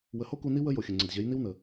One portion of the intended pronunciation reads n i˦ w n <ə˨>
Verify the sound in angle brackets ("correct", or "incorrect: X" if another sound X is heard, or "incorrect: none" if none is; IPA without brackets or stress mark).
correct